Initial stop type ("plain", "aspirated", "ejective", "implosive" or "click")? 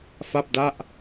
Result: plain